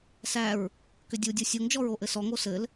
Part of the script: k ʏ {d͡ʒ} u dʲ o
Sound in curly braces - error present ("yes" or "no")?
yes